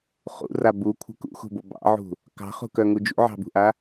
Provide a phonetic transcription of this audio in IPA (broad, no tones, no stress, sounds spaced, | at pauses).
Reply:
χ ṵ r a b u kʷʰ ə̤ k ṵ x ṳ b o b ɑ̰ ʕ ṳ | k ɑ̤ χ ṳ k œ ŋ u d͡ʒ ṵ ʕ ɑ̤ b ṳ ʔ a